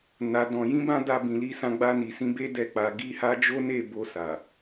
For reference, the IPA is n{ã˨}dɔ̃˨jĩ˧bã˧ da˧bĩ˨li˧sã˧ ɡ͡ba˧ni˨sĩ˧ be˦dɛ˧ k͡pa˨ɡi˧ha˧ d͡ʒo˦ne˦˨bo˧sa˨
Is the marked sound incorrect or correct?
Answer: incorrect: a˨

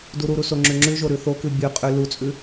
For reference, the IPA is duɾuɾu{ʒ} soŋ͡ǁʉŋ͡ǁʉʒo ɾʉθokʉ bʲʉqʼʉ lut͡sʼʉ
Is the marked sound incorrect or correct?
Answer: incorrect: none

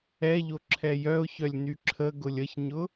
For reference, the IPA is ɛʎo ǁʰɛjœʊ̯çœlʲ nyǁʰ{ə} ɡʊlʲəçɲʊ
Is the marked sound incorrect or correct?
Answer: correct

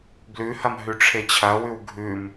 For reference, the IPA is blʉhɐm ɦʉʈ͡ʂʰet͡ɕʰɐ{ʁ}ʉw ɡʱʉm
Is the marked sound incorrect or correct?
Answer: incorrect: w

